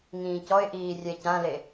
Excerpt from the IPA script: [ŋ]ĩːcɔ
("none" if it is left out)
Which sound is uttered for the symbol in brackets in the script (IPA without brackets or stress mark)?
ŋ